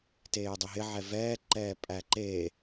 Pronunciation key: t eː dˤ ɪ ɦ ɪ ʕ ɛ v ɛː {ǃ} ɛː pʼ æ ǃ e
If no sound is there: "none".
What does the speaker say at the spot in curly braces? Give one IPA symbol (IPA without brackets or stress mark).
ǃ